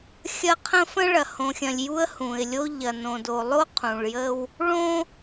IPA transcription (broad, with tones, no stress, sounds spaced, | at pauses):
xʲ ɐ˦ qʰ ə̃˦ f ə̃˦ ɭ ɐ˨ h õ˨ xʲ ɐ̃˨ lʲ j u˦ ə̯ h ũ˨ ɪ̯ lʲ o˦ ʎ ɐ˨ n õ˨ d o˨ lˠ o˦ qʰ ũ˨ ɭ j ə˦ w | ɭ õ˦